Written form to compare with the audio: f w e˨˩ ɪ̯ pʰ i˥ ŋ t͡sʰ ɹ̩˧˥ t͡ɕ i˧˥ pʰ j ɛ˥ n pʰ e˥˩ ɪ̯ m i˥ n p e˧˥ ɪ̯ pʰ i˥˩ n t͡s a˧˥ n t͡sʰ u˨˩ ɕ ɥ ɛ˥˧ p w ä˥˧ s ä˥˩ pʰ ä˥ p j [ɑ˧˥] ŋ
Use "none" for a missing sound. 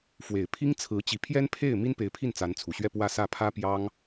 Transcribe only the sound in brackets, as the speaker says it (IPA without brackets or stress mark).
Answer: ɑ˥